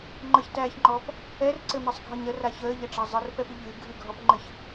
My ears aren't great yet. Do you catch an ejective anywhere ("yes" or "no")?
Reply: no